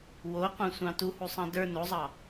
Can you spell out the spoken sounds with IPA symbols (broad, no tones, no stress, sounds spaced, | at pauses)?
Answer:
w o qʷ ɑ̃ sʷ ɑ̃ t u h u sˤ ɑ̃ d ə˞ n o zˤ ɑ